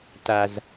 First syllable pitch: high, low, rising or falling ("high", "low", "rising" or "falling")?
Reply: low